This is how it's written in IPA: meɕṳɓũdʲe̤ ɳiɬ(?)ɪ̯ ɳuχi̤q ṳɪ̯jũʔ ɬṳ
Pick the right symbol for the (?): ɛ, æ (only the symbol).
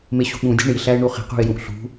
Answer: æ